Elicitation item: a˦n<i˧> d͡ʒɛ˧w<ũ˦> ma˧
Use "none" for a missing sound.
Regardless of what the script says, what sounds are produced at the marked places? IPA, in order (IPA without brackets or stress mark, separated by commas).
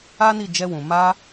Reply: i˦˨, ũ˨